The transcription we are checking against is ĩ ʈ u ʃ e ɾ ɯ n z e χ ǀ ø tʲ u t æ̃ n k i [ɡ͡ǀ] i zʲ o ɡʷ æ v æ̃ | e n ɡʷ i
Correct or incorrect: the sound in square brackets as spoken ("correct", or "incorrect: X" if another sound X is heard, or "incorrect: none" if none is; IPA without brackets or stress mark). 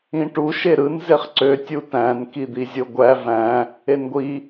incorrect: d̪